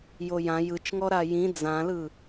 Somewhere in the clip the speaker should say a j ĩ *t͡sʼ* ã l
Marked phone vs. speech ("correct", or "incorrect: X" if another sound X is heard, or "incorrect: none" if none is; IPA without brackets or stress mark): incorrect: d͡z